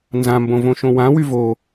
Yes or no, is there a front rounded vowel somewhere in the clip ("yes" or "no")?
yes